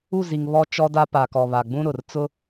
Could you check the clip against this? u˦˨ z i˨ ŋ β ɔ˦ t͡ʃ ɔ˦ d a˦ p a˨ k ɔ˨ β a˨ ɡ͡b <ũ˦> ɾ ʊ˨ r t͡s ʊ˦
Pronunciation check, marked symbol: correct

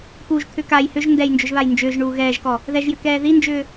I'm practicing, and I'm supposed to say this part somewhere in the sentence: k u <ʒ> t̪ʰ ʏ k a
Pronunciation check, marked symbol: correct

